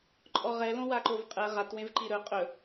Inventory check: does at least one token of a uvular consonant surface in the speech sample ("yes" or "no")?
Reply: yes